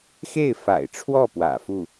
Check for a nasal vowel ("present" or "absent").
absent